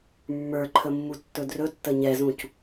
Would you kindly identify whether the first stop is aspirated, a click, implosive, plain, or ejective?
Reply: click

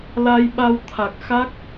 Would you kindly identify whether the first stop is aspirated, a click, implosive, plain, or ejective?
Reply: implosive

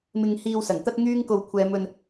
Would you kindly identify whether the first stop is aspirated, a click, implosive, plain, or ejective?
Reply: plain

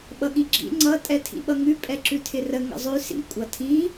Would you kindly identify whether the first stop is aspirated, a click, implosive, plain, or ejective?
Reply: implosive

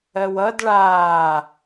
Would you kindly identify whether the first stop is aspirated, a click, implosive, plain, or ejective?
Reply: plain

